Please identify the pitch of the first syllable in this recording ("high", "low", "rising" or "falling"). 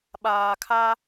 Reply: low